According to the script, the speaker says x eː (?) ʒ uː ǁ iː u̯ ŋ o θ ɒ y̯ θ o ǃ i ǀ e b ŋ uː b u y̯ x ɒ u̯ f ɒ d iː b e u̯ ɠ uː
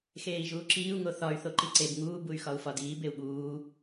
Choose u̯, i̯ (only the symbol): i̯